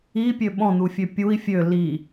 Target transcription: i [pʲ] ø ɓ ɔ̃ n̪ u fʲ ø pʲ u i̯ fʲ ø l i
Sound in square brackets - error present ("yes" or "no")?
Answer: no